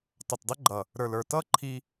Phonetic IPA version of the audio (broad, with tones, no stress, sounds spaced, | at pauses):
tˤ ʌ˨ t dˤ ɪ˦ ɡ͡ǃ ʌ˨ | ɾ ə˞˨ l ə˞˨ t ʌ˦ ǃʰ i˧